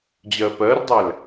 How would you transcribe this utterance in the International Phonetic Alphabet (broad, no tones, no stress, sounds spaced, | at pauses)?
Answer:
d͡ʑ ɜ p ɜ r dˤ æ l